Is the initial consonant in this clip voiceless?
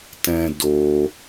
yes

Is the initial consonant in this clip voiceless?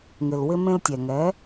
no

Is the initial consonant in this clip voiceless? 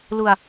no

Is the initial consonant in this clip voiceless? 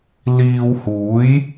no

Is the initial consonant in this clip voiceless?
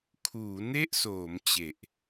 yes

